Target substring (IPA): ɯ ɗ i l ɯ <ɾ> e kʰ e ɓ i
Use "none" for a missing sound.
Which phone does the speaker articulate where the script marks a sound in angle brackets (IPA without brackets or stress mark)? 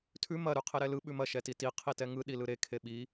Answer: ɾ